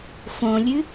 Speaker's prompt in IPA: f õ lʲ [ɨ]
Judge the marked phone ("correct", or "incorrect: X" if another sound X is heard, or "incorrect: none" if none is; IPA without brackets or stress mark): correct